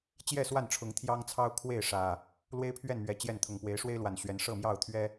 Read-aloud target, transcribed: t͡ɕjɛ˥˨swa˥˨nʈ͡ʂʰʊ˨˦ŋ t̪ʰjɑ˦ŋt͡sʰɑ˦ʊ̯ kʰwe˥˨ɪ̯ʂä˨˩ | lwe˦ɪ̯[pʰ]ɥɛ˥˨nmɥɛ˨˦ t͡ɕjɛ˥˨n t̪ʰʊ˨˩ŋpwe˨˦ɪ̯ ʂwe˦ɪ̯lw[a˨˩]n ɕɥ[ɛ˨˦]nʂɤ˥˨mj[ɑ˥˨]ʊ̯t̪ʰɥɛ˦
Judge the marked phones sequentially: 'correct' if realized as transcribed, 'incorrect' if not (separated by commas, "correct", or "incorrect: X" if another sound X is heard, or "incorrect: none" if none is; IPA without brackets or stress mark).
correct, correct, correct, correct